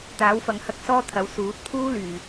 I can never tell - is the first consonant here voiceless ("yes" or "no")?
yes